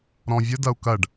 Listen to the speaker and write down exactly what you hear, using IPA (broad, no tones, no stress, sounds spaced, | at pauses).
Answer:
ɾ ɔ̃ vʲ ə d ɐ u̯ k ɐ ɖ